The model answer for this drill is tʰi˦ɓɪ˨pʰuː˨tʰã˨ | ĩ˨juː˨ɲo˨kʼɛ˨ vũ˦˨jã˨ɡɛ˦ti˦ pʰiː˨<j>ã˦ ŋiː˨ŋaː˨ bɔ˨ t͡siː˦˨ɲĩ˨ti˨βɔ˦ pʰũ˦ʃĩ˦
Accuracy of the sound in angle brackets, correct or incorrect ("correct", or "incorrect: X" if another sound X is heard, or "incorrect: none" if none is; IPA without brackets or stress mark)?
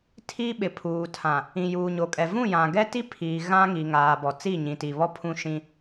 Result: incorrect: ɣ